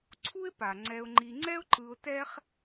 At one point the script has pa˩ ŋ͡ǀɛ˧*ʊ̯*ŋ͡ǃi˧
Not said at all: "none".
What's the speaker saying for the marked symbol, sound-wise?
ʊ̯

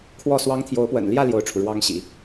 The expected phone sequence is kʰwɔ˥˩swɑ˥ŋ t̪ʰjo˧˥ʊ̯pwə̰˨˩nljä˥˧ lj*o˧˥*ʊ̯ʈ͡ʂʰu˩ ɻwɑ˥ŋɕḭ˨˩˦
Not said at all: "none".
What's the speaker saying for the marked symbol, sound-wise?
o˥˩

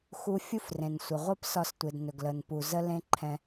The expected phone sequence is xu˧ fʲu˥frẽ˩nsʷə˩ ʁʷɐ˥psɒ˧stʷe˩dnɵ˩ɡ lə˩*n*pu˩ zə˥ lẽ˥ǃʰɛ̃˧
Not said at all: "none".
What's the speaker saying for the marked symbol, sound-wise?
n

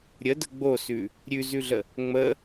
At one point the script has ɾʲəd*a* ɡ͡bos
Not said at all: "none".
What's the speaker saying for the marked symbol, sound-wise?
ə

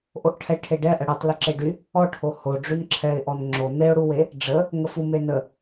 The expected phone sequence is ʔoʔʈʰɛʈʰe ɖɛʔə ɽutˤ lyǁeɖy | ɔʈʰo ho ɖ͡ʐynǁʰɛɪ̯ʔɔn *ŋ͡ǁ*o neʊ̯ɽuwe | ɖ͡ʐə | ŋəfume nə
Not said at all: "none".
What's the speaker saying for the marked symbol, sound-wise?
ŋ͡ǁ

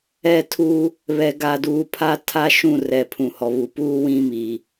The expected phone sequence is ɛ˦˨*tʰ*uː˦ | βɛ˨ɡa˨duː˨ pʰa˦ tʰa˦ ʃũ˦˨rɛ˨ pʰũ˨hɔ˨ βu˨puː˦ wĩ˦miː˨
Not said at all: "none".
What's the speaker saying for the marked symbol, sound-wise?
tʰ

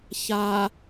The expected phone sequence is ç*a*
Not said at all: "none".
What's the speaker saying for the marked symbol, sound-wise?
a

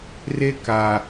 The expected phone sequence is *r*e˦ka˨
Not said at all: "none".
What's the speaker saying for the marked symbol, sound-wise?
r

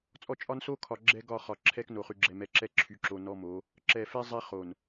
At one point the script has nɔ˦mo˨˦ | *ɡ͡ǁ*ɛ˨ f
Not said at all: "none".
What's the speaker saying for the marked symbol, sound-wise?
ǁ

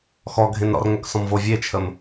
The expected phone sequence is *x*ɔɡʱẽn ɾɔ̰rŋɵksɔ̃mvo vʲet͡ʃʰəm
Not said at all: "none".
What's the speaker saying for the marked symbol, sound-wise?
x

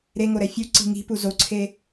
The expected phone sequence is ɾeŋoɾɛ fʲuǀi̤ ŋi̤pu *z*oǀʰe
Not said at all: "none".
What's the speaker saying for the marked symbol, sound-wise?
z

